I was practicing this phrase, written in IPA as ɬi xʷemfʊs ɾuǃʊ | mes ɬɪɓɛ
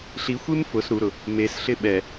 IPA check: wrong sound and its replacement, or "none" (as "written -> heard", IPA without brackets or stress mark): ǃ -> ɾ